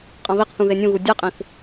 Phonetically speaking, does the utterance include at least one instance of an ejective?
yes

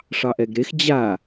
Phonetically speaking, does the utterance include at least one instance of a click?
no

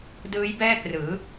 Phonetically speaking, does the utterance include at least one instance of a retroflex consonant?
no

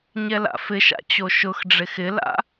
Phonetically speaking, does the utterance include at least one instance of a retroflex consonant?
yes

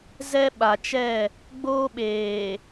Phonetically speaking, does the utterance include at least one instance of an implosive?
yes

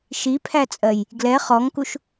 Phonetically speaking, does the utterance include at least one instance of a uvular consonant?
yes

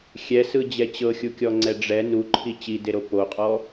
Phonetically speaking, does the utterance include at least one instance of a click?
yes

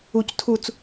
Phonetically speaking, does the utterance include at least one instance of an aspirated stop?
yes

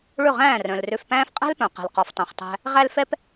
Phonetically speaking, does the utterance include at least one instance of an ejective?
yes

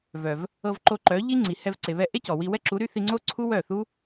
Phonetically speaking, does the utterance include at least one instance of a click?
yes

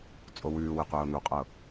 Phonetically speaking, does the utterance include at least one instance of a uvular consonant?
yes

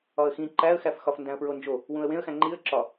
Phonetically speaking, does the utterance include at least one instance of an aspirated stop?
no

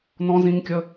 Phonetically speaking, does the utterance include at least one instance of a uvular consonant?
no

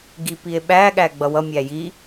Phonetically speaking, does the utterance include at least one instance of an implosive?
yes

